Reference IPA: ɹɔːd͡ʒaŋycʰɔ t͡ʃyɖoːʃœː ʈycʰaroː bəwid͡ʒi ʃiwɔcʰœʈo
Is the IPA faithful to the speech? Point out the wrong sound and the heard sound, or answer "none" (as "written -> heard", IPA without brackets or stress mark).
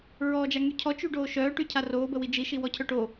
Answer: none